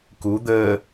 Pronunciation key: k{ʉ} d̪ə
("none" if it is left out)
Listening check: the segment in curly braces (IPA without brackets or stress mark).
u